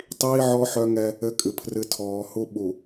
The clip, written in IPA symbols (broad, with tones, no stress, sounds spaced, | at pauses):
tˤ iː˦ ʕ ɔ˦ ħ œ˦ ŋ ɛ˦ | ɘ˦ kʼ ɨ˨ pʰ r ɨ˦ tʰ ɔː˨ h u˦ ɓ u˨